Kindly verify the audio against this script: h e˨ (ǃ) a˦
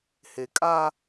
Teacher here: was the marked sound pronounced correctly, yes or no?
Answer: no